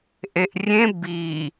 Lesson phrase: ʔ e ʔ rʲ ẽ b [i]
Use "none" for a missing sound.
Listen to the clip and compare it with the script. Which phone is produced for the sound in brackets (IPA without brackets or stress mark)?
i